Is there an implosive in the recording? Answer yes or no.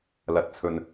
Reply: no